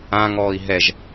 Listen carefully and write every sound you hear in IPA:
ã ŋ ɔː i̯ ɦ ɛ ʒ

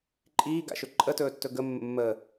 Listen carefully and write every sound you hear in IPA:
ǃʼ iː ɡ a̰ ʃ ɵ ǃʼ ə t ɵː tː ɵ ɡ ə mː ə̰ mː əː

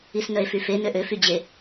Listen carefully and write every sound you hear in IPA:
i s n œ e̯ f y f e n ø ʔ ø f y d͡ʑ e

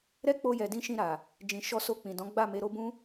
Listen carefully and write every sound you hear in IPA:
ɾ ɛ˦ k͡p o˧ j ɛ˨ d ĩ˧ ʃ ĩ˧ ɾ a˨ | d͡ʒ ĩ˨ ʃ ɔ˧ s o˧ k͡p ĩ˨ d ɔ̃˨˦ ɡ͡b a˦˨ m e˨˦ ɾ o˦ b ũ˦

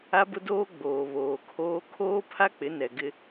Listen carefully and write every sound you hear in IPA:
a˦ b ʊ˦ d oː˦ ɡ͡b oː˨ β oː˨ kʰ oː˦ kʰ oː˦ pʰ a˦ k͡p ɪ˨˦ n ɛ˨ ɡ ɪ˦

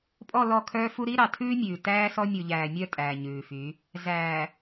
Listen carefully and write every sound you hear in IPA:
pʼ ɔ˦˨ l ɔ˦˨ kʰ œː˦ f u˦ ɾ i˦ ɾ ɑ˨ tʰ ʉː˦ mʲ ʉː˨ t æː˦ s ɔ˦ mʲ u˨ ʎ æː˨ mʲ œ˦˨ tʼ æː˨ ɲ ʉː˨ f y˨˦ | z æː˨

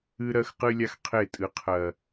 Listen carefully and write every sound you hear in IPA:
ɨ˦ ɾ ɜ˦ x q ɨ˦ lʲ a˦ x qʰ e˦˨ tʼ ɨ˦ qʰ ɜ˦

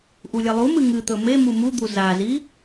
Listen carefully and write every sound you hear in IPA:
ʔ u lʲ ɐ lˠ u m ɨ ŋ ɨ t̪ ɵ m e m u m u d̪ u z a z i

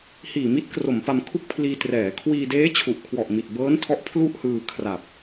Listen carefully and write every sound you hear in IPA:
h iː˨˩ m i˦˥ t̚ k r o˩˦ m p a˧ m kʰ u˥˩ k̚ pʰ l iː˧ t r ɛː˩˦ kʰ w iː˧ d eː˦˥ t͡ɕʰ u˨˩ ʔ kʰ w ɔ˨˩ ʔ m i˨˩ t̚ b ɤː˦˥ n tʰ ɔ˦˥ ʔ pʰ l u˥˩ ʔ h ɯː˧ kʰ r a˨˩ p̚

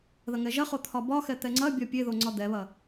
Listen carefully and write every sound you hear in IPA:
ð ɐ ŋ ɛ ʒ ɐ χ o t̪ʰ ɒ b ɒ x ɛ t̪ ɛ ŋ͡ǀ ɐ bʲ ɒ pʲ e ð o ŋ͡ǀ ɒ d̪ ɛ β ɐ

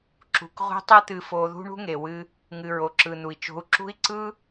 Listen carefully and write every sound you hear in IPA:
ǁ ṳ˨ k ʁʷ e̤˧ tˤ ɯ˦ t̪ ɨ˧ f o˧ ð ṳ˦ ɳ ṳ˦ ŋ e˨ w ɨ˧ | ŋ ɨ˨ ɹ o˨ ǁ ɯ˨ n̪ u˨ i̯ t͡ʃ o̤˧ u̯ ǁ ṳ˦ i̯ ǀ ɯ˦

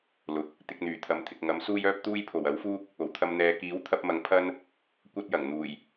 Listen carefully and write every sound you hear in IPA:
l ʊ˨ k̚ | t̪ ɪ˧ k̚ n̪ yː˨˩ t̪ʰ ɐ˨ m t̪ʰ ɪ˨ k̚ ŋ ɐ˨˥ m s uː˥ j œː˥ p̚ t̪ uː˥ j pʰ o˨˩ w ɐ˨˥ w f uː˥ k̚ | o˨˩ w t̪ʰ ɐ˧ m n̪ ɛː˨˧ k iː˨˥ w t̪ʰ ɐ˥ p̚ m ɐ˧ ŋ pʰ ɐ˥ n | kʷ ɐ˥ t̚ j ɐ˨˩ ŋ n̪ uː˨˩ j

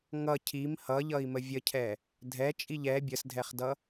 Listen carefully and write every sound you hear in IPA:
ŋ ʌ cʰ i m h ʌ ʎ ʌ i̯ m ə vʲ ə cʰ ɛ | dʱ ɛ t͡ʃʼ i ʎ ɛ bʲ ə s dʱ ɛ χ d ʌ

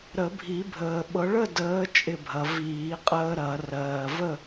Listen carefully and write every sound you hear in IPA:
ɾ ə˨˩˦ bʱ i˨˩˦ bʱ əː˨ ɓ ɤ˨˦ ɭ ə˥˨ d əː˨˦ t͡ʃʼ ɪ˥˨ bʱ ɐ˨˦ v iː˨˩˦ qʼ əː˦ ɾ ɐ˨˩˦ r ɜː˨ v ə˥˨

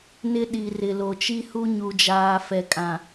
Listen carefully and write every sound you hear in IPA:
n ɪ˦ ɗ i˨ r ɪ˨ l o˨ t͡ʃ i˦ h u˦ ɲ u˨ d͡ʒ aː˨ f ɛ˨ kʼ ã˨

